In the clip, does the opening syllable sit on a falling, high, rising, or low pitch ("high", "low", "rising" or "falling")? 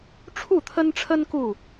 falling